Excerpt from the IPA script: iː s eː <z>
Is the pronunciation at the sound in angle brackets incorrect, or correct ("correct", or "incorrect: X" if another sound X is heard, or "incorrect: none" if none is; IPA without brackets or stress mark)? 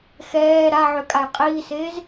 correct